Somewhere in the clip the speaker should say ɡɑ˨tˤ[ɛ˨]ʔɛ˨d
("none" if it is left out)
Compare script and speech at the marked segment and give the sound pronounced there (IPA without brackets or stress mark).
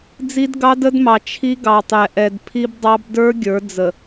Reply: ɛ˨